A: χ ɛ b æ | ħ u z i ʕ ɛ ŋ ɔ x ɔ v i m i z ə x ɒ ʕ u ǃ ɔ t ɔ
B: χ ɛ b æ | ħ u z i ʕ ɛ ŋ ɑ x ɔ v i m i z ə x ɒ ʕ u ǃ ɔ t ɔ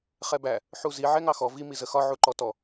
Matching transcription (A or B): B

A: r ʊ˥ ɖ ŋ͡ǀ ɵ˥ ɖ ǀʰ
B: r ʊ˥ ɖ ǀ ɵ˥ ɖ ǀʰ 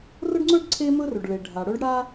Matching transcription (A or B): A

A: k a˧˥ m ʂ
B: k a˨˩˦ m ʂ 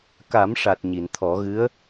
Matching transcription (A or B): B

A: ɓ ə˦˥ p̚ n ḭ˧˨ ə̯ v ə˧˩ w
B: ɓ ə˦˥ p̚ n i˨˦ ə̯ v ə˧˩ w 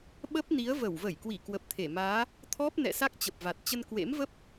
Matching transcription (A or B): B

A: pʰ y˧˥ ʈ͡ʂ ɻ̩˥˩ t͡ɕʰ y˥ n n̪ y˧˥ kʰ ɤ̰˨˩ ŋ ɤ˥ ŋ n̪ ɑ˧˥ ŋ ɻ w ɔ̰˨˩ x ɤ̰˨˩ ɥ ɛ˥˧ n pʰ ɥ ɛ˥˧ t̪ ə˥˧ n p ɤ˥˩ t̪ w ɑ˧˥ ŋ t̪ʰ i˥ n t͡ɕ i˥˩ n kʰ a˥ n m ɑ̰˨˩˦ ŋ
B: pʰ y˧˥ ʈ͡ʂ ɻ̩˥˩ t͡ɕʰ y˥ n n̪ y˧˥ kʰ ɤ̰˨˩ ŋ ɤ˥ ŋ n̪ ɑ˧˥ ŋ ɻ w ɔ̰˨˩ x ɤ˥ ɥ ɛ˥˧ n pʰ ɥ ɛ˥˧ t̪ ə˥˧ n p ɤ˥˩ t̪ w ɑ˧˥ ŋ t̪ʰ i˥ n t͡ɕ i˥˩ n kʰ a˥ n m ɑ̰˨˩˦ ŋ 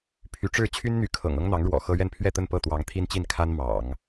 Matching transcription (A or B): B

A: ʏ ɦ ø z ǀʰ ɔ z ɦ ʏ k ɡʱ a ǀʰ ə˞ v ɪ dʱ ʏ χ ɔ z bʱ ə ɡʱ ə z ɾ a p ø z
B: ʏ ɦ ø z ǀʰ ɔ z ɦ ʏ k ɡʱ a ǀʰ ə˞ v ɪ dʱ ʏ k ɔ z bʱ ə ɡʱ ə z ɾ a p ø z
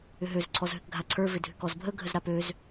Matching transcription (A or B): B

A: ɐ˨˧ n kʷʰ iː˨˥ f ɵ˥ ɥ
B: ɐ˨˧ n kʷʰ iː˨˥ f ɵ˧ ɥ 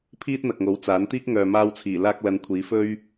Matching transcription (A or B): A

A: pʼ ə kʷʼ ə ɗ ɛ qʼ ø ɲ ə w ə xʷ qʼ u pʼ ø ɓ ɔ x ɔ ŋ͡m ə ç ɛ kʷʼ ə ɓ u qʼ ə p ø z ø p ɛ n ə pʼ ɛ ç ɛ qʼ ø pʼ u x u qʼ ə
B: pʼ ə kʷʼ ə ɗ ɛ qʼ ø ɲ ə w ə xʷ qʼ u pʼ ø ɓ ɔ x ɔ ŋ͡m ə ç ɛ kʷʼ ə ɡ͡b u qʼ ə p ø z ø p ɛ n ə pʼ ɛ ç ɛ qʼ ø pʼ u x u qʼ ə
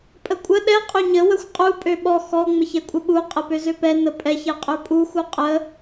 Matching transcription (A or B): A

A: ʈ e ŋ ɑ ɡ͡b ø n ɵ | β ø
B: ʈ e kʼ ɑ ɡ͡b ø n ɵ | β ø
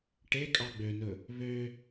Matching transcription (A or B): B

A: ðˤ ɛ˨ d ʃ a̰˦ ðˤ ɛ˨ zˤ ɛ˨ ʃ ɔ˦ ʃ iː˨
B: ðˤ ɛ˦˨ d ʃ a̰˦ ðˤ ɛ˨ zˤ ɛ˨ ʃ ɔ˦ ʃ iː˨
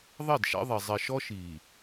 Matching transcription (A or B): B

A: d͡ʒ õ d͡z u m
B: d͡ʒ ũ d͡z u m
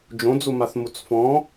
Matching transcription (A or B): A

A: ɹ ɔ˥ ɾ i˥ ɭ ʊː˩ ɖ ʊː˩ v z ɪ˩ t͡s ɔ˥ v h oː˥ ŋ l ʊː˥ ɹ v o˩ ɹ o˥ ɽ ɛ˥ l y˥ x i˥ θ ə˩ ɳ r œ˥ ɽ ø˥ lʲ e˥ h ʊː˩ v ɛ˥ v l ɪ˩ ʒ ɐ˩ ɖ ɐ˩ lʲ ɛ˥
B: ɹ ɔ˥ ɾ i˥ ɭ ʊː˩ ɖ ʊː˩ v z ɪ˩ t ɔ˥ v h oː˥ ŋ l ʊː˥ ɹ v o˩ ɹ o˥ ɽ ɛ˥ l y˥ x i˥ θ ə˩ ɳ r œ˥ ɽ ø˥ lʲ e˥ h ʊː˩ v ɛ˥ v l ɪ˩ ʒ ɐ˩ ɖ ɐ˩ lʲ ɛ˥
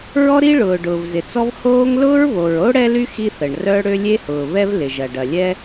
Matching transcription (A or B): A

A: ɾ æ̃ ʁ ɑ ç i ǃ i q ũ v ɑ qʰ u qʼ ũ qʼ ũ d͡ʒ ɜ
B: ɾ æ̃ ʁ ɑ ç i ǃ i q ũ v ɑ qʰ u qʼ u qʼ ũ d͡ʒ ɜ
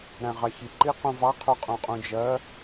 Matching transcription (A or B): A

